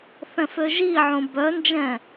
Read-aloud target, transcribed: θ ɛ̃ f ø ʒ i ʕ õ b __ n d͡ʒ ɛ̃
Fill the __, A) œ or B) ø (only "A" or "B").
A